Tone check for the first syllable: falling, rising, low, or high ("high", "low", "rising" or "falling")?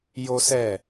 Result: high